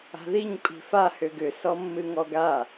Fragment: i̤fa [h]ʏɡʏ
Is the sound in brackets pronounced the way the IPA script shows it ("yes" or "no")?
yes